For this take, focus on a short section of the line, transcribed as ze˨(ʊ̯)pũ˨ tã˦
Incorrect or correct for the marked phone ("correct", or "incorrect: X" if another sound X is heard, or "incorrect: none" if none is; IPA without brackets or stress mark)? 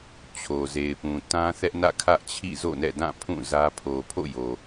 incorrect: ɪ̯